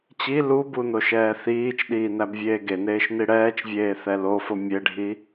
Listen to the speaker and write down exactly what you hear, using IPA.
t͡ɕ i l u b u n o ʃ ɛː θ iː t͡ʃ ɗ iː n æ b vʲ eː ɡ e n eː ʃ n i ɽ ɛː t͡ʃ vʲ eː θ ɛ l o f o mʲ e ɖʱ i

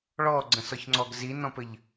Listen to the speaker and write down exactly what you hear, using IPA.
ɭ ɔ ɡ͡ǀ ə̃ s ɔ ç ŋ͡ǀ ɔ ɡ z i n ɔ̃ p ɘ ʎ

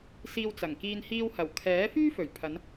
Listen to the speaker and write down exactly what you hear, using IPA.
s iː˧ w t͡s ɐ˨˩ ŋ k iː˧ n h iː˧ w h ɐ˨˩ w kʰ ɛː˨˥ f yː˥ f ɵ˨˩ ɥ pʰ ɐ˨˧ n

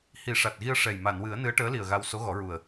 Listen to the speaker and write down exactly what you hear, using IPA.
h i˨˩˦ ʂ a˨˩ t̚ ɣ i˧ ə̯ ʂ ɛ˨˩ j m a˨˩˨ n w ɨ˨˩˦ ə̯ n ɨ˧˥ ə̯ ʈ əː˧˥ l i˨˩ ə̯ ɣ a˧ w s o˧˥ ɣ ɔ˨˩˦ ɹ u˨˩ ə̯

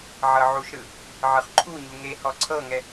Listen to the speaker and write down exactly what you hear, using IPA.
ʕ ɤ ʕ u ʃ ɾ ɯ | ʕ ɯ χ ǃʰ u ɲ u ŋ e h ɔ ǀʰ ɤ ŋ ɛ

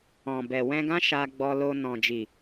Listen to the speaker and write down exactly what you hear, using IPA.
ɔ̃˨ b ɛ˨ w ɛ̃˧ ɡ ã˦ ʃ a˧ ɡ͡b ɔ˧ l o˧ n ɔ̃˨ d͡ʒ i˨

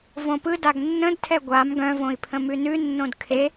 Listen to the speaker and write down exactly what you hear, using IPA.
v õ p ɯ d a ɡ nː ə̃ d tʰ ɛ ɡʷ a m ɡ œ̃ v õ i̯ pʰ ə̃ m ʉ n ʉ nː õ d kʰ e

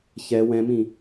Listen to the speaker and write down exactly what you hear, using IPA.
ç ɛ w ɛ̃ m ĩ

